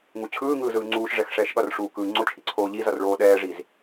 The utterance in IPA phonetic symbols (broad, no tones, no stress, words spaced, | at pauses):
ŋut͡ɕʰɯːŋɯː zɯːŋ͡ǀuːʃʐɛx ʂɛːʃɠʌrʂuː kɯːŋ͡ǀot͡ʃʰi ǀʰoːʎizʌr ɭoːɗɛːʐiz